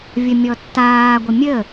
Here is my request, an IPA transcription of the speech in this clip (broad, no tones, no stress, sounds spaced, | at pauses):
vʲ ə mʲ ɔ tː aː ɡʷ ə mʲ ə